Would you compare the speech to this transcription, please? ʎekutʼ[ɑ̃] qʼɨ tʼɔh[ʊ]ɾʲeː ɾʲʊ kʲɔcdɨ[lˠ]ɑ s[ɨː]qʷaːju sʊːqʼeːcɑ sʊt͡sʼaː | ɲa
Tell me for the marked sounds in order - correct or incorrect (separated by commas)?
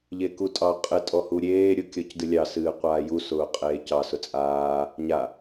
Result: incorrect, incorrect, incorrect, correct